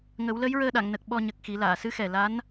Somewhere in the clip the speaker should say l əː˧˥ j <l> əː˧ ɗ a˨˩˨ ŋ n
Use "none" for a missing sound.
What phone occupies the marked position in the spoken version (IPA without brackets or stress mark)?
ɹ